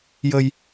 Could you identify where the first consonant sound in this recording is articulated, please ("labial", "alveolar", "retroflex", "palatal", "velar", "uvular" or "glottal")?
palatal